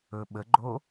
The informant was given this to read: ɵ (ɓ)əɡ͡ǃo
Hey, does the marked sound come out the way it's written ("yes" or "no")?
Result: yes